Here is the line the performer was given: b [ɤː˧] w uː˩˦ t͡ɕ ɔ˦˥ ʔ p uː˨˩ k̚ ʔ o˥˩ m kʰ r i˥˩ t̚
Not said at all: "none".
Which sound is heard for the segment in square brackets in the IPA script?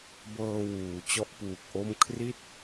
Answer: ɤː˧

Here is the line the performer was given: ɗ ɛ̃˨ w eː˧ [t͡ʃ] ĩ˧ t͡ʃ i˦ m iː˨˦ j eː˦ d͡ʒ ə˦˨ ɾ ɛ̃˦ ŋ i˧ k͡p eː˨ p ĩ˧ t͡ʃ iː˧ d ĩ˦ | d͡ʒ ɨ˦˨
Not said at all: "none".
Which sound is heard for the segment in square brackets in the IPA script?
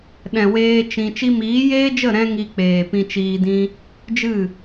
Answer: t͡ʃ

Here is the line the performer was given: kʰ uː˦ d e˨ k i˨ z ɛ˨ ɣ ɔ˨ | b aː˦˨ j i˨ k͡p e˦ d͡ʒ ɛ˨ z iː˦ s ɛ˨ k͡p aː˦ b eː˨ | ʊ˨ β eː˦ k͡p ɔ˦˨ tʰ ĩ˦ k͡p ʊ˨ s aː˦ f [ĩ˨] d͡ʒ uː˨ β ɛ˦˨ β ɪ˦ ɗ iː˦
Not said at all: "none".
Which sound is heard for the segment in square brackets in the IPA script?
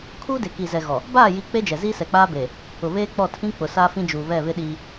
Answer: ĩ˦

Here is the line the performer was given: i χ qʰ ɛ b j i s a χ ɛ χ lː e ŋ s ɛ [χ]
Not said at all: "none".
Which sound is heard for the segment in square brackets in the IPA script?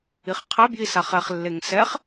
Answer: χ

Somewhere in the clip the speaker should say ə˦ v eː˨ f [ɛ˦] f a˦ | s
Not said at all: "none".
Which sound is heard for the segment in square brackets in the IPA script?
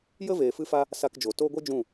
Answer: ɨ˦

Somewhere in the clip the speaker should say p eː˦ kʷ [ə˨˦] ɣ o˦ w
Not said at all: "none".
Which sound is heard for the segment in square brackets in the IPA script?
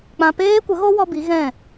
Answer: ə˨˦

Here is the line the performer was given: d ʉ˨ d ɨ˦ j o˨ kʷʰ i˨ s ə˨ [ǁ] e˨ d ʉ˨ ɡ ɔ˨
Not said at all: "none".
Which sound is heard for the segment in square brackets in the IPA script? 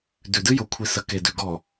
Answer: k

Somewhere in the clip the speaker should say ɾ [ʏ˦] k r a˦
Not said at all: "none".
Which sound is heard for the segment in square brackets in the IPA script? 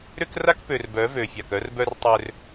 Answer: ʏ˦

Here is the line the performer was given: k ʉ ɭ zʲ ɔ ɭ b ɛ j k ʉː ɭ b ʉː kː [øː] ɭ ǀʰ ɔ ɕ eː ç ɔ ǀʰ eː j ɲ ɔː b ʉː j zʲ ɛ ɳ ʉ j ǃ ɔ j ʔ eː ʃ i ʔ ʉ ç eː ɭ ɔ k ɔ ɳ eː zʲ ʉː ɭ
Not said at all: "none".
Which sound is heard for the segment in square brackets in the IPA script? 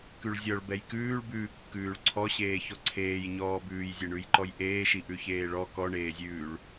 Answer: ʉː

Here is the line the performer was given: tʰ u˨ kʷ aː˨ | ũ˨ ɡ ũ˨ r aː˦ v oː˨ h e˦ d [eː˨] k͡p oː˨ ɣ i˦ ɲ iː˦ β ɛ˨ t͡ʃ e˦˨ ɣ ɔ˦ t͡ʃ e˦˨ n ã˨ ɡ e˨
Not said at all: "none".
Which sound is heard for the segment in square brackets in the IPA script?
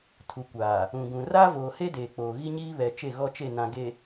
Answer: eː˨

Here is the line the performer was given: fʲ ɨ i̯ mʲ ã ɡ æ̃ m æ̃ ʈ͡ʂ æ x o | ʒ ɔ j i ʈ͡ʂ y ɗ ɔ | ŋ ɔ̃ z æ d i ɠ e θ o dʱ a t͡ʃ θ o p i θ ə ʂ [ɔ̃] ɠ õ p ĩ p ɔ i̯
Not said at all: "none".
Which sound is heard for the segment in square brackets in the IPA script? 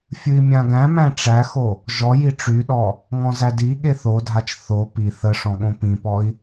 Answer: ɔ̃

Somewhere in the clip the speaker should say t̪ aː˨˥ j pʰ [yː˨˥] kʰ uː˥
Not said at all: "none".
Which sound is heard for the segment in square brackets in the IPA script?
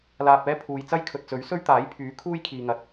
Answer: yː˨˥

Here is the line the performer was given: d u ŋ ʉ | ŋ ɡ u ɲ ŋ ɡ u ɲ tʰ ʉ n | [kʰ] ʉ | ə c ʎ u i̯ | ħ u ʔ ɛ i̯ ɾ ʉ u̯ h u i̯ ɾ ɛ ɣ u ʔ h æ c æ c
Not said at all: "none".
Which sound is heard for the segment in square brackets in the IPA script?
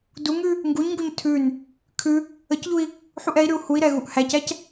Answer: kʰ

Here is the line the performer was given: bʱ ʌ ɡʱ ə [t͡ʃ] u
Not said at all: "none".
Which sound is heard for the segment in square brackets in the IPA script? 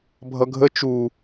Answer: t͡ʃ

